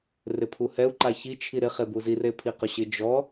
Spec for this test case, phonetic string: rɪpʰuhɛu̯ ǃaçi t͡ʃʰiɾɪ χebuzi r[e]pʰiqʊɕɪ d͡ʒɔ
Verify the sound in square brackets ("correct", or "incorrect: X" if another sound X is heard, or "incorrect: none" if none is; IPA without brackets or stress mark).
correct